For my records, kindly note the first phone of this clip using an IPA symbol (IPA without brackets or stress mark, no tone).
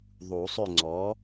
ðˤ